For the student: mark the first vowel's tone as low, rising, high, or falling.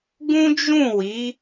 high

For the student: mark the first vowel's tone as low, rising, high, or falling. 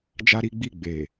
high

